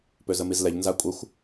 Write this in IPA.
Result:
p ø z ə m i z l ɛ ʎ n z a kʷʼ ə xʷ

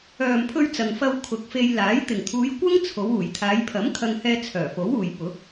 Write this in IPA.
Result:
œː˨ m pʰ ɵ˧ ɥ t͡s ɐ˨ ŋ f ɐ˧ w kʰ ʊ˨˥ k̚ f e˧ j l aː˨˥ j t̪ ɪ˨˩ ŋ t̪ʰ uː˨˧ j kʷ ɐ˥ ŋ t͡sʰ o˨˧ w uː˨˩ j t̪ʰ aː˨˧ j pʰ ɐ˨˥ m kʰ ɐ˧ ŋ h ɛː˧ t͡sʰ œː˨˩ f o˨˥ w uː˨ j p ʊ˨˥ k̚

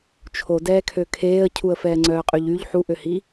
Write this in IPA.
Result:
t͡ʃʰ o d ɛː kʰ ø kʰ eː ə̯ cʰ u ə̯ f ɛː ŋ͡ǀ œː qʼ y ʎ y ʎ ħ u ʔ ø h i

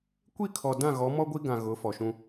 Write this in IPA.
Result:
kʷ i˦˨ kʰ ɔ˨ d ã˦˨ ɣ ɔ˨˦ m ɔ˦ ɡʷ i˦ ɡ ã˨ ɣ ʊ˨˦ f ɔ˨ ʃ ũ˦

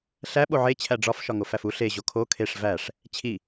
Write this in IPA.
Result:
ɬ æ ɓ o ʕ e t͡ɕʰ æ ɖ͡ʐ ɒ f ʃ ɒ ŋ o f æ f u ɬ e ʑ o kʰ o kʰ e ʂ v æ ʂ | t͡ɕʰ i

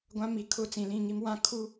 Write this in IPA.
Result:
ɡʷ ã˦ m i˨˦ kʰ ʊ˦˨ t͡s ĩ˨ l ĩ˦˨ ŋ i˦ m w ã˦ kʰ u˦

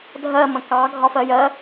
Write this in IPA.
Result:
dʱ ɜ m ə̃ k ɑ ɡʱ ɒ f ɜ j ɜ

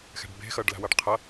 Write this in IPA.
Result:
x ɛ̤ ɖ b e̤ x ʌ ɖ l a̤ w ʌ ɖ qʰ ʌ

